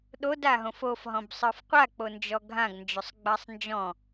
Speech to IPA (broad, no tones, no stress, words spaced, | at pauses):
ɗodaɦõf ofɦɔ̃bsˤə˞f qʷak͡pond͡ʒɔ ɡʱãɡnd͡ʒosˤɡ͡basˤ nd͡ʒɔ̃